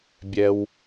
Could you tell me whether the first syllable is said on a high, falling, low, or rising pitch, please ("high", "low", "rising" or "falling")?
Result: low